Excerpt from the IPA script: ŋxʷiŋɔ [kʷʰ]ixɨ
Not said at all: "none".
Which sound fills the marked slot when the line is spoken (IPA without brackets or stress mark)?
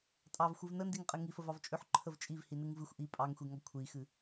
kʷʰ